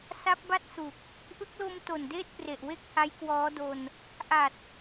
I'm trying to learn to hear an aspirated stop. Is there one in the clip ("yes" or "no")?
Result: no